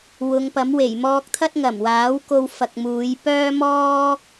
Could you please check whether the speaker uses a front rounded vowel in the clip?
yes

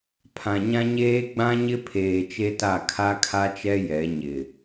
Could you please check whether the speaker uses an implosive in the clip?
no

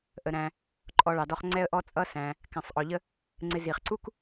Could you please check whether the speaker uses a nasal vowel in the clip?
yes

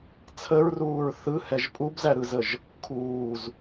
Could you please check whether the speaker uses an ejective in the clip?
yes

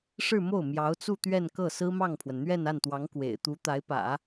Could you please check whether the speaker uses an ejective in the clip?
no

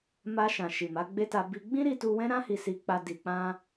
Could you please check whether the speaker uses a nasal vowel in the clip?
yes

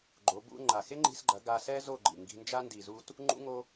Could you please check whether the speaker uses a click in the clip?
yes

